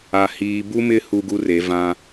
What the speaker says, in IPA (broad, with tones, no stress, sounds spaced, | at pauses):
a˨ h iː˨ b u˦ m ɪ˦ h u˦ ɡ u˦ r e˨˦ v ã˦